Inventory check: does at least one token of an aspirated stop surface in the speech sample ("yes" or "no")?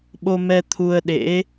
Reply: yes